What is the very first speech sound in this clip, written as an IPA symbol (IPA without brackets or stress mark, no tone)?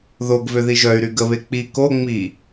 ð